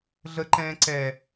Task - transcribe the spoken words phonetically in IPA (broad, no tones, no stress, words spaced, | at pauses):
ɮəǃɛ̃ː ǀɛ